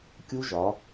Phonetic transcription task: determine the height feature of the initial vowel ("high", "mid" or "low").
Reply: high